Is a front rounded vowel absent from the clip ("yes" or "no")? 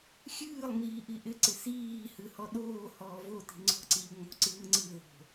yes